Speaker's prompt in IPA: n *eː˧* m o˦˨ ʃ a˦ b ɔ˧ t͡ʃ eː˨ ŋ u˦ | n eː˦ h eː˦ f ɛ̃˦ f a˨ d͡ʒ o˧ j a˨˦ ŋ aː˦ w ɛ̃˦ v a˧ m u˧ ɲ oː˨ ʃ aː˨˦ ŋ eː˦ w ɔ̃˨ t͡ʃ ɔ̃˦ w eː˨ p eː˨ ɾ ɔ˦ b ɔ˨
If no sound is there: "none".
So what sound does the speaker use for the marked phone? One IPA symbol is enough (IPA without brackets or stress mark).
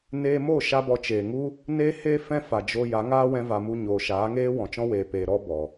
eː˧